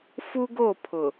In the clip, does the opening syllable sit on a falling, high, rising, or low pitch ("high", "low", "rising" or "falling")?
high